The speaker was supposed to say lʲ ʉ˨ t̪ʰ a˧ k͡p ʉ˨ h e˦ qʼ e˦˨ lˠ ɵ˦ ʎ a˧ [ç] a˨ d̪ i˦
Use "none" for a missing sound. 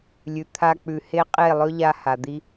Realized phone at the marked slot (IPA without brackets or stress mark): h